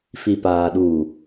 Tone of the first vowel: low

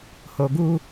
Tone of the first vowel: low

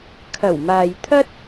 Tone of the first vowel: low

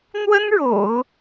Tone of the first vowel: high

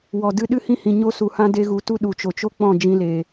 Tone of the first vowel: low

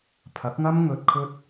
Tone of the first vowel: rising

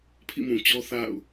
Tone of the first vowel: falling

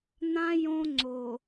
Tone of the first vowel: high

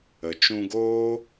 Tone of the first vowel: low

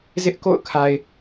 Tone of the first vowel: high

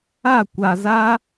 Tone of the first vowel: falling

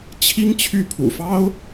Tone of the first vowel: high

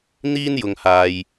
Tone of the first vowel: high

